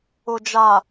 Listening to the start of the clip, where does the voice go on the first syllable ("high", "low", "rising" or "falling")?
low